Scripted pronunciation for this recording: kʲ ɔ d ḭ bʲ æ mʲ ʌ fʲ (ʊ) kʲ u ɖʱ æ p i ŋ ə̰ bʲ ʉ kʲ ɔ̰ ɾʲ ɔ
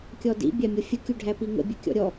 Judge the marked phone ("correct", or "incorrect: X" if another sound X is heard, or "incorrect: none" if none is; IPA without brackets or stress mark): incorrect: ə